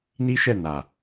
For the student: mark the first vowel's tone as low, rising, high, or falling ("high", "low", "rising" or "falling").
high